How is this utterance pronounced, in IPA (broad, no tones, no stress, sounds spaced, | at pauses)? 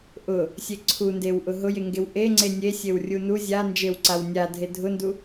ʔ ʊ | sʲ e ǀʰ u n d e w ʔ ʊ ɦ ʊ j e ŋ ɡ e w ʔ e ŋ͡ǀ e nʲ e sʲ e w rʲ u n u zʲ a n d͡ʒ e w ǀ a w nʲ a dʱ e dʱ ʊ n d u